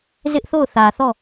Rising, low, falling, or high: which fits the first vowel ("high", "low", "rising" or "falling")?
high